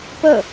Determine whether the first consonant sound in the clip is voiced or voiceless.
voiceless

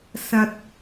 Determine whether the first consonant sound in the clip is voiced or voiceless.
voiceless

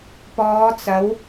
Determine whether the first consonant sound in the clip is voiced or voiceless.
voiceless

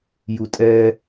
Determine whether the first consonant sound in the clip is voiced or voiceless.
voiced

